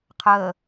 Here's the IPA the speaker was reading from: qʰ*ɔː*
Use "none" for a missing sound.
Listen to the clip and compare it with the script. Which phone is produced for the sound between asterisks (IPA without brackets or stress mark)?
əː